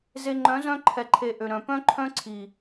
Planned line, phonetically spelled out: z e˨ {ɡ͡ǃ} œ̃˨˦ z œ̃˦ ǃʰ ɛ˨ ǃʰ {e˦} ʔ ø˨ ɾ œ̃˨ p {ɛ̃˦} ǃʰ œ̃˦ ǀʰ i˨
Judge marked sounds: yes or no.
no, no, no

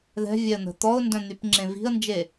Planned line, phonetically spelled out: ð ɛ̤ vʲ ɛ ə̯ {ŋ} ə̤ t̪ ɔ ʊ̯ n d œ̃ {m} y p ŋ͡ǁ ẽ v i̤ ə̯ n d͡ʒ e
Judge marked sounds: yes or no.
no, no

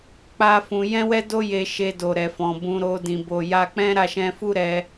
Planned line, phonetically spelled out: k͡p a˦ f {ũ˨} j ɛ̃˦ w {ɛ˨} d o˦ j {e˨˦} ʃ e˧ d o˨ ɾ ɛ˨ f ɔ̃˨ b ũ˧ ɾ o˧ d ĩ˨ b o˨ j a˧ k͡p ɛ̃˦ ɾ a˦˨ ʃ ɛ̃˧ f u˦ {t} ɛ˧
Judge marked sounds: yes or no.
no, no, no, no

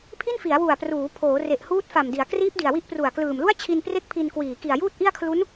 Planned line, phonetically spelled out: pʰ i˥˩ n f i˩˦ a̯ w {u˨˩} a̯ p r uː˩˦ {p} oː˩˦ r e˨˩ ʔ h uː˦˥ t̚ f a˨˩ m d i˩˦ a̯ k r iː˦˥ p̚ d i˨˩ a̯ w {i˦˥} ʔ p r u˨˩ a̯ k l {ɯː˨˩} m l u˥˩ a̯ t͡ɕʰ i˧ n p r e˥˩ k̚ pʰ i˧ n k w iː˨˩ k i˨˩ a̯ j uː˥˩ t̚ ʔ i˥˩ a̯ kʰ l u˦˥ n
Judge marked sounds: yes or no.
yes, no, yes, yes

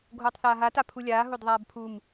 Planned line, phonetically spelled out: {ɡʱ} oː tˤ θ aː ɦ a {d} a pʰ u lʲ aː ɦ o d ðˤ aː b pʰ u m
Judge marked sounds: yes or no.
yes, no

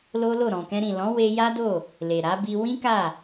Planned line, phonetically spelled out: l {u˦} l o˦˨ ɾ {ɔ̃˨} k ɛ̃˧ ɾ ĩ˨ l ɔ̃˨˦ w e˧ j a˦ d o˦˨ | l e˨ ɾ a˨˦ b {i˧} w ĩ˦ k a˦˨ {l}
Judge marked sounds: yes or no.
no, yes, yes, no

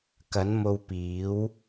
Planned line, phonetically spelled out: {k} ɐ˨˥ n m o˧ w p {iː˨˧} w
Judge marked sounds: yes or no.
yes, no

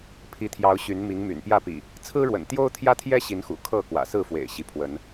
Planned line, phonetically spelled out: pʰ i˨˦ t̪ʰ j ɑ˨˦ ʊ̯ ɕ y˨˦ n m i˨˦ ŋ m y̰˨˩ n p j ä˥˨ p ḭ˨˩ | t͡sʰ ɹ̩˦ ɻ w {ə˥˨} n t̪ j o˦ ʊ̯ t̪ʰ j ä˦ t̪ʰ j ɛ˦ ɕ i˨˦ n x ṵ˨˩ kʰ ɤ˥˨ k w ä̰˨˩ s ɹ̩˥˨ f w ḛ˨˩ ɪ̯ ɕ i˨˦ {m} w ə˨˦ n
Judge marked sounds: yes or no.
no, no

